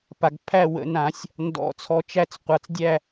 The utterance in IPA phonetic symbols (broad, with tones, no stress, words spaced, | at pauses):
pa˧˩ɡpʰæ˥˨ wə̰˨˩˦nã˨˩˦sʲ | ndɔ̰˨˩˦t͡sʰɔ˧˩t͡ʃæ˥˨t͡s qʷa˧˩t͡sdʲæ˥˨